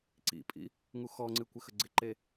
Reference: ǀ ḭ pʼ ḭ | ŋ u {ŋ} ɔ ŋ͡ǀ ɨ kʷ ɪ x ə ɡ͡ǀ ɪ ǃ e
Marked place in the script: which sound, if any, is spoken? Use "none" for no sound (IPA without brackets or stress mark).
x